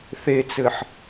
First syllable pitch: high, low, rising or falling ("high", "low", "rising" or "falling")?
low